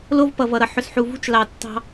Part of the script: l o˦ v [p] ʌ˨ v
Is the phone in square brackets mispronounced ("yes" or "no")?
no